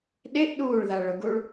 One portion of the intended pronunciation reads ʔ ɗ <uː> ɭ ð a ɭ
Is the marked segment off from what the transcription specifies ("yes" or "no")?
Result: no